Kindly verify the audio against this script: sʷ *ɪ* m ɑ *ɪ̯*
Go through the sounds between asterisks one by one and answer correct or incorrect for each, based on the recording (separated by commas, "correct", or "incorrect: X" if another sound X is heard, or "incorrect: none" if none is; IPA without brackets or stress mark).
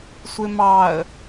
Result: correct, incorrect: ə̯